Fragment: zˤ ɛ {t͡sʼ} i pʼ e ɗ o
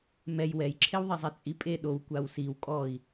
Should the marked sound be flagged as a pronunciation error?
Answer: no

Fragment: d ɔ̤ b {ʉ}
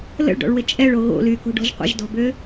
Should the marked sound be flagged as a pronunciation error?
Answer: yes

